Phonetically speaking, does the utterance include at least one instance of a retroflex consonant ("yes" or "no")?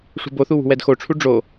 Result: yes